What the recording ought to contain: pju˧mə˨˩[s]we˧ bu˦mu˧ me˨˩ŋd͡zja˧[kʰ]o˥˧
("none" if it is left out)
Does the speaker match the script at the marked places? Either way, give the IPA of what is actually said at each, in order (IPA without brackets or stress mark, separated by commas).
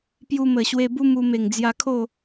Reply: ɕ, kʰ